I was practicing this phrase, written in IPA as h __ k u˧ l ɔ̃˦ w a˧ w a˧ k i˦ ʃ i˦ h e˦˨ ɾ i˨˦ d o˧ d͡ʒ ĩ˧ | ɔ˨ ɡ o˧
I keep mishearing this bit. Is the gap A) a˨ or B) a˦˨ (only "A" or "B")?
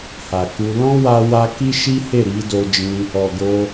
A